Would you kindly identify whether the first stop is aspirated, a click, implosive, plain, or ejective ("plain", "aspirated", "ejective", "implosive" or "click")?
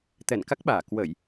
plain